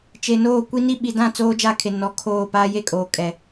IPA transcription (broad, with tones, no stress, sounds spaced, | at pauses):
t͡ʃ e˨ n oː˦˨ kʷ i˦ n i˦ ɓ i˨ d ã˦˨ t͡s oː˦ d͡ʒ a˦˨ kʰ e˨ n ɔ˨ kʰ oː˦˨ p aː˦ j e˦ kʼ oː˨ kʼ ɛ˨